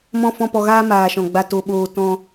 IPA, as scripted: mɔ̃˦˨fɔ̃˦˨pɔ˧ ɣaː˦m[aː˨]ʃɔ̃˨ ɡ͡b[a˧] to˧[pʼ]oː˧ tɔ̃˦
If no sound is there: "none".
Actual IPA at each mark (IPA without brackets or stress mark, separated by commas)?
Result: aː˨, a˧, ɓ